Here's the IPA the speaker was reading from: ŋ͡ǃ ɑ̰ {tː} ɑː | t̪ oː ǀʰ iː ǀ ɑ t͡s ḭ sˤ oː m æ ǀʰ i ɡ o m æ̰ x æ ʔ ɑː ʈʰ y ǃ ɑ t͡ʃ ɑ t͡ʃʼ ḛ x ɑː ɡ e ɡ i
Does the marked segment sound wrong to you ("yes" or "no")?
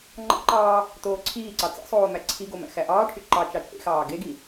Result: yes